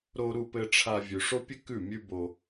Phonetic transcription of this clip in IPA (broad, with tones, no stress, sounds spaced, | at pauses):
ɾ o˧ ɾ u˧ p ɘ˧ ʈ͡ʂʰ a˧ vʲ ʉ˨ ʂ o˦ pʲ ɘ˦ k ʉ˦˨ mʲ ʉ˦ b o˧